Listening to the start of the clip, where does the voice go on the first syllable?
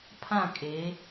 falling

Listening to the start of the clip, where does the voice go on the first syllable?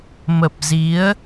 low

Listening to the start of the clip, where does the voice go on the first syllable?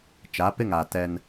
rising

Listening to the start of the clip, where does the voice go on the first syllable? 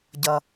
low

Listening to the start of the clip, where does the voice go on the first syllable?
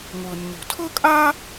low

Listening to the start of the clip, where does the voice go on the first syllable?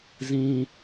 high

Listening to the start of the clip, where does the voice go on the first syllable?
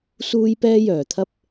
high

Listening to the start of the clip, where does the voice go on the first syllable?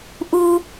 high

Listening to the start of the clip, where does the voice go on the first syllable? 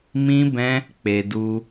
high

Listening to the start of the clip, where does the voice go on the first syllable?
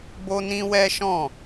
high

